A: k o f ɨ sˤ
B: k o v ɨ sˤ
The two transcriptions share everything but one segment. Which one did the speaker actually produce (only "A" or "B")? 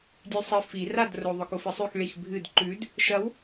A